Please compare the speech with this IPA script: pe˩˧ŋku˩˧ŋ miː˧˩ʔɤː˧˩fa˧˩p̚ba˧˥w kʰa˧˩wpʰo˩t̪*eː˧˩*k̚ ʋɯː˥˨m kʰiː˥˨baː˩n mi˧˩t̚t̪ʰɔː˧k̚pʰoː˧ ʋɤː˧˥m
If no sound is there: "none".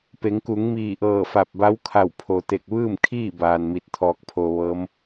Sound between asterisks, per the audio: e˧˩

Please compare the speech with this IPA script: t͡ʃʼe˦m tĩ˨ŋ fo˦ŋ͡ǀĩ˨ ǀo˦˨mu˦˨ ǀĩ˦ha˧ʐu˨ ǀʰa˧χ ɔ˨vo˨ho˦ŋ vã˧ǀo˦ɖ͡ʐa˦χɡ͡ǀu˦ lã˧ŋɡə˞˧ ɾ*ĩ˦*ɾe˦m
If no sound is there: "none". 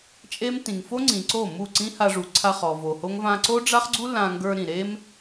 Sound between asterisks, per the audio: ĩ˨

